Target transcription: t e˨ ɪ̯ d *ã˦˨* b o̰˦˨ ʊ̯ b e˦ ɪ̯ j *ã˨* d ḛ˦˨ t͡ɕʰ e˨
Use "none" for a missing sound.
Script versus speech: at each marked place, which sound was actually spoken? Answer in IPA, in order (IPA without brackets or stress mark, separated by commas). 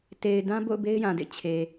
ã˦, ã˨